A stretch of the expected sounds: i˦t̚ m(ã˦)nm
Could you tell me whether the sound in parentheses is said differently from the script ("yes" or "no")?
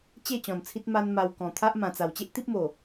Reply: yes